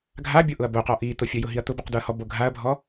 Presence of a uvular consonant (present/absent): present